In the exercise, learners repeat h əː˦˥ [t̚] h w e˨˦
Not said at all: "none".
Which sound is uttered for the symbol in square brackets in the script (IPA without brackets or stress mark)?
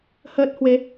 t̚